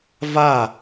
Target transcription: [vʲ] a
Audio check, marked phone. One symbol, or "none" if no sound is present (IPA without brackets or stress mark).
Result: v